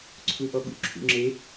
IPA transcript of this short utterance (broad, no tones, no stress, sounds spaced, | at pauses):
ǀʰ u ʔ ɔ ɠ ṵ ǁʰ ṵ ŋ͡ǁ e